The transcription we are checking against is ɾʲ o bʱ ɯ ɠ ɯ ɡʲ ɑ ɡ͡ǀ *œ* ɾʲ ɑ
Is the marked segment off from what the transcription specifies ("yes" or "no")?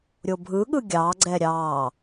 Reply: yes